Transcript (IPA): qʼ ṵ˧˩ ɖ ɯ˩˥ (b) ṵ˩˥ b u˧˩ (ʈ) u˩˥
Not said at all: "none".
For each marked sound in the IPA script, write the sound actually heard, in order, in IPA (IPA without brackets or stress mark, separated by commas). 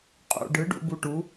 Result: ɖ, ʈ